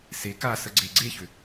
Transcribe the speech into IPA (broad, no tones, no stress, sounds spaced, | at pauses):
s e k a s ə ɡ͡ǀ e ɡ͡ǀ e ç ʏ